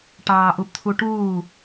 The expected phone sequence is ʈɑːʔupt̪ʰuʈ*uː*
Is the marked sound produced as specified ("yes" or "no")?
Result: yes